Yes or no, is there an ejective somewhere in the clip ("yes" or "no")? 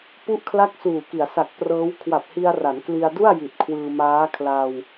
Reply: no